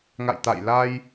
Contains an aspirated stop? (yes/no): no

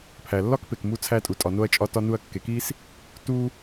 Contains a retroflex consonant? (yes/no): no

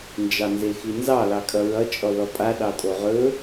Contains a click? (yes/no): no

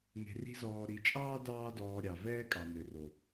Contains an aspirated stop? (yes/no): no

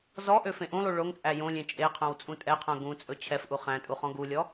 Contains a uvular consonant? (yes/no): yes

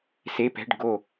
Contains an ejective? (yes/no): no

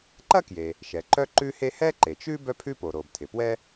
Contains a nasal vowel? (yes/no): no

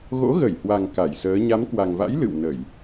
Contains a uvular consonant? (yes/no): no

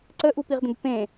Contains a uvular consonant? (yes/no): yes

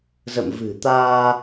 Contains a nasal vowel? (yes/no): no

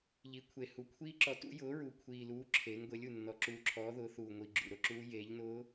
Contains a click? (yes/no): yes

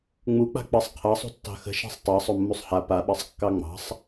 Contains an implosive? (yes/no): yes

